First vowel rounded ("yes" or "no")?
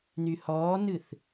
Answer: yes